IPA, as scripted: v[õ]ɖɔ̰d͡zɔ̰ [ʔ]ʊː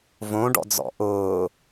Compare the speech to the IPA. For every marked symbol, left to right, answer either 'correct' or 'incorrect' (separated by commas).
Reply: correct, correct